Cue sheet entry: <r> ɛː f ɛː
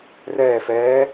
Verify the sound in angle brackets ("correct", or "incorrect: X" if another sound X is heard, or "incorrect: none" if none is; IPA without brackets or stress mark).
correct